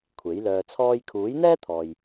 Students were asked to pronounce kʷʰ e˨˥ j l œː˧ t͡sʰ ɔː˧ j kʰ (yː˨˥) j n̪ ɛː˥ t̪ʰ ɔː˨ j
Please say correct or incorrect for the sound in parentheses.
incorrect